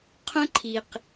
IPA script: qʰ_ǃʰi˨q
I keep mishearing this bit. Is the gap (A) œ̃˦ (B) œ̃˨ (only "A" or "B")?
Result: A